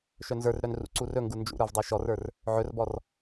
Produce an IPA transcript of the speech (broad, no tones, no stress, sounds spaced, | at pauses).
ʃ œ n z ə˞ r ɾ œ n r ṵ ǀ u r ɵ ŋ ɡ u n d͡ʒ ṵ ɾ ə˞ v dˤ o ʃ ɔ r ə˞ r | ʕ ɵ r b ɔ r